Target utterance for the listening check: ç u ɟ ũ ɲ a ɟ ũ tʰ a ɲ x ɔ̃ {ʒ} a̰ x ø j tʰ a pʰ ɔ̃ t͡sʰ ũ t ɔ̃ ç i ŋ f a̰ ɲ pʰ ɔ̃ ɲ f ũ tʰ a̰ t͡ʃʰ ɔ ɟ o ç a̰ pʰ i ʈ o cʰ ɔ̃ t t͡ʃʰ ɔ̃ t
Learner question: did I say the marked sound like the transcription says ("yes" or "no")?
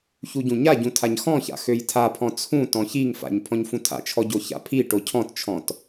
no